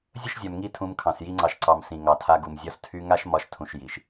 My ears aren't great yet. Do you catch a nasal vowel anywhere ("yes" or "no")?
yes